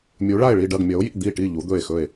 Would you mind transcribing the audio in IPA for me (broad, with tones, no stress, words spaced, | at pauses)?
mʲu˨˦ɭa˦˨e̯ɭi˦˨ɖɐ˦˨ɡ mʲɐ˨˦o̯jḭ˦˨ d̪i˦˨ʈi˦˨ ʎu˨˦d̪ɵ˦˨e̯xɵ˦˨e̯